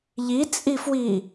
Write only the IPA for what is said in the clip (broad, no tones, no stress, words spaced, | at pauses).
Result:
ʎit͡sʼifwi